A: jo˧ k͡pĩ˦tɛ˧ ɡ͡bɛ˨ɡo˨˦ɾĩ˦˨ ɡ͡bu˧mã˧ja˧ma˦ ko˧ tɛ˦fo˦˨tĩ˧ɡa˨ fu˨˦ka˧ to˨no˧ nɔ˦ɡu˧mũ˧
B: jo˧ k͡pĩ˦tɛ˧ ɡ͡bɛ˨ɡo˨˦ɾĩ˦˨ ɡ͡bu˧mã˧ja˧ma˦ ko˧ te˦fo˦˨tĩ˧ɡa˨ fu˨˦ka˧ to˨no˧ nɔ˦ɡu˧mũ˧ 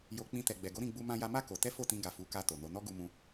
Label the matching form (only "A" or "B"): A